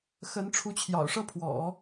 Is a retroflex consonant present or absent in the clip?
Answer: present